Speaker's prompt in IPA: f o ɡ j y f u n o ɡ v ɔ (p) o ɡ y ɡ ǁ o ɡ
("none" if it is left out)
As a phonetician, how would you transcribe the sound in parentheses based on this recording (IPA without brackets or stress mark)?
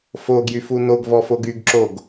f